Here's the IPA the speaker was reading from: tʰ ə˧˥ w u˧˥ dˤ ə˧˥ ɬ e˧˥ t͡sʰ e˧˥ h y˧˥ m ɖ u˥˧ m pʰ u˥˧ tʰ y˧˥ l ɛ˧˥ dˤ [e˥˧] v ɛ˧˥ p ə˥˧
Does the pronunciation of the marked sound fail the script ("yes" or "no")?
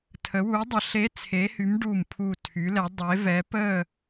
yes